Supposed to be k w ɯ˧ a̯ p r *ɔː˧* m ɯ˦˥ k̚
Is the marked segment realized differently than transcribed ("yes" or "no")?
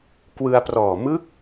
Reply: yes